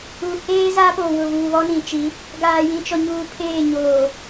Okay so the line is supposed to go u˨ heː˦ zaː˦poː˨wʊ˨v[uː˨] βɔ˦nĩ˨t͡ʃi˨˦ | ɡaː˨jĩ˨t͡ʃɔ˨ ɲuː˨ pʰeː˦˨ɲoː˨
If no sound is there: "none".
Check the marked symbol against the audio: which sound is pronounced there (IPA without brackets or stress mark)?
uː˨